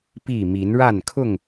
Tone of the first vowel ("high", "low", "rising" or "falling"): falling